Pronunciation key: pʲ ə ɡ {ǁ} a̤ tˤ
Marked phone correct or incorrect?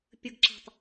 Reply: correct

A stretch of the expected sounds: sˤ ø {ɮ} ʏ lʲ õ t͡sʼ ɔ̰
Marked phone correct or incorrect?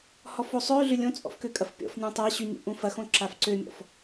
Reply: correct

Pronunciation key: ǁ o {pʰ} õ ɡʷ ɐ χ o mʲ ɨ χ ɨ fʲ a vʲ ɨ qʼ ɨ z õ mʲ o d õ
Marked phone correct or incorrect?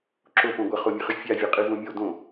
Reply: incorrect: p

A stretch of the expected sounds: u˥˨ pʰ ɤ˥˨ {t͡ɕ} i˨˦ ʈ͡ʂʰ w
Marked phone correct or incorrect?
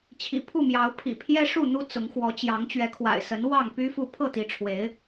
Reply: incorrect: t̪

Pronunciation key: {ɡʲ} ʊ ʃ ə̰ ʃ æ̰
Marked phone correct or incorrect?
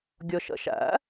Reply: correct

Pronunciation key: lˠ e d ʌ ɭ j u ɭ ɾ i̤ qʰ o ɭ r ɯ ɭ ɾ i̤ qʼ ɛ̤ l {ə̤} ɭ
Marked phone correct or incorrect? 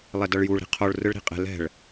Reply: incorrect: ɛ̤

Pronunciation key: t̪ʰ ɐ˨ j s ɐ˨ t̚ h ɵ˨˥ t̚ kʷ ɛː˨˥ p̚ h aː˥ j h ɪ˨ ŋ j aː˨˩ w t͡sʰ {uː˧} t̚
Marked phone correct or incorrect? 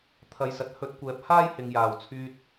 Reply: incorrect: yː˧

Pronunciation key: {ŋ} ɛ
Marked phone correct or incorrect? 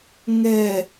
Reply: correct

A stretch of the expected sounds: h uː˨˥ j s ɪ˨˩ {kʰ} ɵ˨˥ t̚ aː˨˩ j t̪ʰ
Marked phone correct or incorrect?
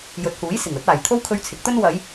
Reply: incorrect: ŋ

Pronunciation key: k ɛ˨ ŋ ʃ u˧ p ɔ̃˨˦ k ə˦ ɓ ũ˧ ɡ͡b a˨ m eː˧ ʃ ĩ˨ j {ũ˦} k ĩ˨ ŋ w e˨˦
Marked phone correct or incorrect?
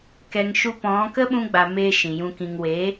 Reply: incorrect: ũ˧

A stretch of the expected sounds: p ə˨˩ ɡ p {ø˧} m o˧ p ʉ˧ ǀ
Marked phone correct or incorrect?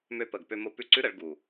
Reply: correct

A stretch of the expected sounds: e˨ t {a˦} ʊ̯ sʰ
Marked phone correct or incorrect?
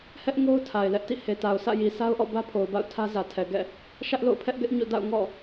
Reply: incorrect: a˨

